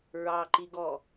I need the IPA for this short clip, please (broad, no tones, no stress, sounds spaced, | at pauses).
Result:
ɹ ɑ ǃ i ɡ ɔ